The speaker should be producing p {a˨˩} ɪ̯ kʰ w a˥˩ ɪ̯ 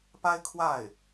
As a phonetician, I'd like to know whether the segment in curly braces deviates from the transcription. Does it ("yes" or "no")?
yes